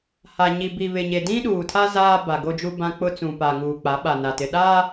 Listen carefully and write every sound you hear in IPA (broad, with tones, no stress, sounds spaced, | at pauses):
h a˨ ɲ i˨ b i˨ β ɪ˨ ɲ e˨ d ĩ˦ ɗ uː˨ tʰ a˦ z aː˦ b a˨ ɡ o˦ d͡ʒ u˦ b ã˦ k͡p ʊ˦ t͡s ũ˨ p a˨ ŋ uː˨ k͡p a˨˦ ɓ a˨ n a˨ t ɪ˨ ɗ a˦